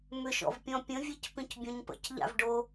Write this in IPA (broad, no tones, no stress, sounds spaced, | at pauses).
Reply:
m ʏ ʃ ɔ̰ v pʲ ɔ̃ pʲ ə̃ vʲ e c p ĩ c bʲ õ ɲ p ə̰ c ʎ a̰ v ɖ o